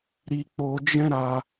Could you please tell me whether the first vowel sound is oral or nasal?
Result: oral